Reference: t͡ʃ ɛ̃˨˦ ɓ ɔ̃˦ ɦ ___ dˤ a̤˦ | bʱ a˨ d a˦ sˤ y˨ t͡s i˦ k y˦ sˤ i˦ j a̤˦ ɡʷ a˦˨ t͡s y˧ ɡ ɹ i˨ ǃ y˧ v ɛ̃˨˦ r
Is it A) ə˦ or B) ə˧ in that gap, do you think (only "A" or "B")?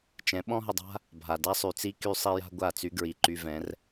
B